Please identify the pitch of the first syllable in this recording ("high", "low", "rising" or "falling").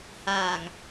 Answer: low